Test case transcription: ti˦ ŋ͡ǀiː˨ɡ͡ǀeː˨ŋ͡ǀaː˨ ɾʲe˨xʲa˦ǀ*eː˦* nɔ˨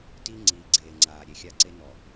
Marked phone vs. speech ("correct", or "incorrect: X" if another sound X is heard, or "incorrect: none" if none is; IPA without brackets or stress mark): incorrect: e˦